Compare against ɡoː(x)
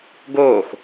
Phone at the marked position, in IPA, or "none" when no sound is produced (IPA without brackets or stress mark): x